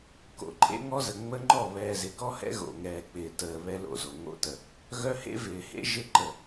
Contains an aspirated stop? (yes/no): no